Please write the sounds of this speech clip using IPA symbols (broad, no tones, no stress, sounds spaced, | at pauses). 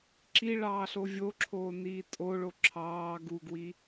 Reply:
ǁ i ɭ ɑː ɬ o vʲ o ǁʰ oː n iː tʼ o ɭ o ǁʰ ɑː ɡ u ɡ w i